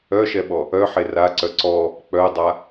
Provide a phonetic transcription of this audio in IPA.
œʃɛɓɔ | œħe raǀœ ǀɔ | k͡pœdˤa

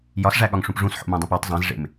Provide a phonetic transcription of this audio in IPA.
jɒsʐæɠɒŋʂũp ʐũsħo̰mẽdˤẽp ɒtˤ zˤẽzʐḛm

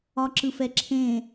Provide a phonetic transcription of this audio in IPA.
ɒǁɯfɛǁʰẽ

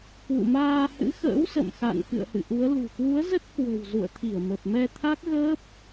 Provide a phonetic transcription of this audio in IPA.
kwṵ˧˨maː˧hɨ̰˧˥ xə̰ː˧˥w sə̰˧˨mxa̰˧˨n kɨ̰˧˨ə̯hɨ̰˧˨ʔu˨˦ə̯lṳ˨˩ kwu˨˦ə̯zə˦˥t̚ kwə̤˨˩wzṵ˧˨ə̯ t̪ʰi˧˩ə̯mə˨˩p̚mɛ˧ t̪ʰa˦˥k̚ɣəː˦˥p̚

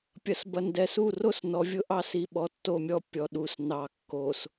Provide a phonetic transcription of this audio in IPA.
pʲɐ˨sbɐ˨ndɛ˨su˦˨ ro˦snɔ˨vʲʊ˦ʔɑ˦ si˨ ɓɔ˨tːo˦˨mʲɔ˦ pʲɔ˨ɗu˨s nɑ˨kːo˨s

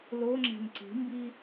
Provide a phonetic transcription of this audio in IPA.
loŋ͡ǁɛ̤n ǀi̤mbi

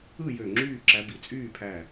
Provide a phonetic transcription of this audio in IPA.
ɯ˥˨jø˧˩ ŋ͡ǁyː˥˨ǁæ˨˦ bi˩t͡sʼyː˥˨pʰæ˧˩

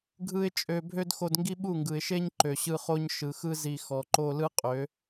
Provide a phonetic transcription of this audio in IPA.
ɡʱɯ˦ɪ̯t͡ʃʼø˧ bʱø˦dxo˧dŋɡi˦ ɓu˦˨ŋɡɯ˨ɪ̯ʃe˦ɲ ǃø˨ɕɯ˧χo˦ɲ ʃɯ˨xɯ˦ zi˧ xɔ˨ǃo˧lɯ˦ qʼø˨˦

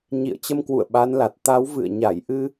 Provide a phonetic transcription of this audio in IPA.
ɲḭ˧˨ə̯t͡ɕə˧mkwṵ˧˨ə̯ ɓa˨˦nla˨˩t̚ t̪a˨˦w vɨ̰˧˨ə̯ ɲa˧˩jʔɨ˧

